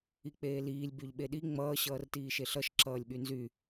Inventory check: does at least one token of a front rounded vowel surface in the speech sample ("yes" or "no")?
yes